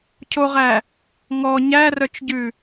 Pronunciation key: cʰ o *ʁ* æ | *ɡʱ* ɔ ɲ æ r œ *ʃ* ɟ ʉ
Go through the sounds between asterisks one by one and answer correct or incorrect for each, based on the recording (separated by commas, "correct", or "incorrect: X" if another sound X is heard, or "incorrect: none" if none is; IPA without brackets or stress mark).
correct, incorrect: ŋ, incorrect: t͡ʃ